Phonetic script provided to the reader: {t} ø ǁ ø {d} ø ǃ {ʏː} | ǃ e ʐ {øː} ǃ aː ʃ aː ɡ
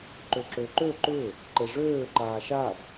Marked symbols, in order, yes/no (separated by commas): no, no, yes, yes